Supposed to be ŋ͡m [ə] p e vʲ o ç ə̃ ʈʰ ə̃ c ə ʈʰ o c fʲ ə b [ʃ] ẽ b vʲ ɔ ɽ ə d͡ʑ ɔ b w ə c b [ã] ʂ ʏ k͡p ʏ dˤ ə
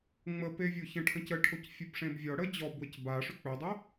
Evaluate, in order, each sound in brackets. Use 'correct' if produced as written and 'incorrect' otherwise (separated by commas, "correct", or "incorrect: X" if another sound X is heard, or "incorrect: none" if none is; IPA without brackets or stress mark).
correct, incorrect: ʂ, incorrect: a